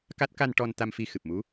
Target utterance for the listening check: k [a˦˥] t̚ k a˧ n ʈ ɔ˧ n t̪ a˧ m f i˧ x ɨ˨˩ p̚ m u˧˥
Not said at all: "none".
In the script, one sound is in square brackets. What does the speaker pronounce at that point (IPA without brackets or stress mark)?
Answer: a˦˥